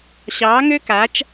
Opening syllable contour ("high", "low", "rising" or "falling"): rising